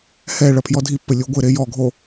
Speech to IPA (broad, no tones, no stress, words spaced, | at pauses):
hɛ ɭɐpʰjɔdʱipːɘ lʲoɡʷɘɾe jɔɡʱo